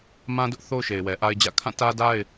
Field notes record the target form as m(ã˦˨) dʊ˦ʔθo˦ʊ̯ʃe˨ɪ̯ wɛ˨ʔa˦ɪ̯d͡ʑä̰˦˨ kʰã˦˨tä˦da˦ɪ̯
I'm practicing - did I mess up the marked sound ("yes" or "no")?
yes